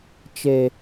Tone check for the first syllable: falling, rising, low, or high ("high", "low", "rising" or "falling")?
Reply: high